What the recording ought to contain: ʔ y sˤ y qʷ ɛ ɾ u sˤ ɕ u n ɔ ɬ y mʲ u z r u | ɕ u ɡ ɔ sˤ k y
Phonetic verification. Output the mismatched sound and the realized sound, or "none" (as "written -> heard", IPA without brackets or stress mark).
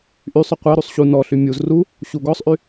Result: k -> ʔ